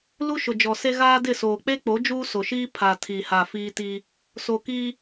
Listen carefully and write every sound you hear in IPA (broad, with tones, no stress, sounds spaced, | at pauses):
l u˦ ʃ ʊ˨ d͡ʒ ɔ˨ s e˦ ɣ aː˦ d ɪ˦˨ s oː˨ k͡p e˦ k͡p o˨˦ d͡ʒ uː˦ s o˨ ʃ iː˦ pʰ a˨ tʰ i˨ h a˨ f iː˦ t iː˦ | s o˨ k iː˦